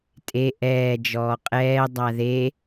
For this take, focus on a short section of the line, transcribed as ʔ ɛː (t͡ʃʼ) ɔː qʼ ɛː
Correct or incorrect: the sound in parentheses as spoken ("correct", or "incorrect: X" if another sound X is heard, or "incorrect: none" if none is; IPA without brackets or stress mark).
incorrect: d͡ʒ